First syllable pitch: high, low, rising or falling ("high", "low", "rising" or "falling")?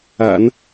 low